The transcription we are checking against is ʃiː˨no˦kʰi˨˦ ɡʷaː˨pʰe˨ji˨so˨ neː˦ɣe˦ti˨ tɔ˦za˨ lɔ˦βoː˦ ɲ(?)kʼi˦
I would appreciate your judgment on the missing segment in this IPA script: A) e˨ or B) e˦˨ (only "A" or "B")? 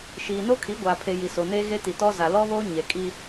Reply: A